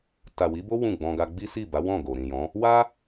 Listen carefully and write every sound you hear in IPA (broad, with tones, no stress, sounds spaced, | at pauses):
t a˨ w i˨˦ b o˦ w ũ˦˨ ɡ͡b ɔ̃˧ ɡ a˦ ɡ͡b i˦ s i˦˨ b a˨˦ w ɔ̃˦˨ ɡ o˨ ɾ ĩ˨ j ɔ̃˨˦ | w a˦